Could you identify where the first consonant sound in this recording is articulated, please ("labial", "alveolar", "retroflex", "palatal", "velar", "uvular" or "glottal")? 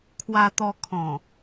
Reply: velar